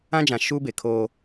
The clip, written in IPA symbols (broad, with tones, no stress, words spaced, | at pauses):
ã˦d͡ʒã˨ ʃuː˦be˨kʰoː˦